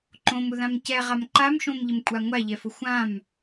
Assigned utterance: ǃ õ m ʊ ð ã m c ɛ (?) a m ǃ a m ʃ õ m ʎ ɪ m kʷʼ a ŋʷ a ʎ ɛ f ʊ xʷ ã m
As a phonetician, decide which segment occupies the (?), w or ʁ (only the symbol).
ʁ